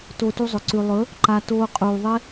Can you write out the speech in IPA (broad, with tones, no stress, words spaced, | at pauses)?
to˧tu˧zˤɵ˨ ǀʉ˨lˠɵ˨˦ | ǃa˧ toː˧qʼuː˨ðˤe˦